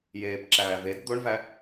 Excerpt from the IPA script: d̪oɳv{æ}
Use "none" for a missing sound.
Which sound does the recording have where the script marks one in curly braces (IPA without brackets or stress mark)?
æ